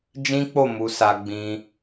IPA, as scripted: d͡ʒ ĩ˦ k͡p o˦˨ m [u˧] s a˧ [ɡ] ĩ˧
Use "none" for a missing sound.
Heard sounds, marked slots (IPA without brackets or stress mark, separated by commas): u˧, ɡ͡b